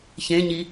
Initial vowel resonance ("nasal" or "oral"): nasal